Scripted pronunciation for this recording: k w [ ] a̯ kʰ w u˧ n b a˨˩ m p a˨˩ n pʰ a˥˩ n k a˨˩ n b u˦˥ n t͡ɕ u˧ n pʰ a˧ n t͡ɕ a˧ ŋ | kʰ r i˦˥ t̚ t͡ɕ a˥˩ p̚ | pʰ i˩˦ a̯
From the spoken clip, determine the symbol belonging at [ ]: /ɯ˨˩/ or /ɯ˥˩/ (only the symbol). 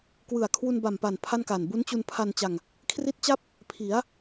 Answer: ɯ˨˩